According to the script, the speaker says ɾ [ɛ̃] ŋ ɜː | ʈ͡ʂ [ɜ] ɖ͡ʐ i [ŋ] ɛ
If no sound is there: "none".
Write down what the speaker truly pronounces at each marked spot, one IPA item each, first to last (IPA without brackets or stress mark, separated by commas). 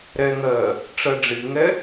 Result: ɛ, ɜ, ŋ